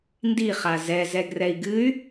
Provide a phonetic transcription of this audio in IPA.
n d i χ a z ɛ z ɛ ɡ r ɛ i̯ ɡ ɨ y̯

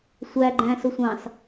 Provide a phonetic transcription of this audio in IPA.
sʷ æ ɡ͡ǃ æ̃ː s ʊ sʷ ɑ̃ s

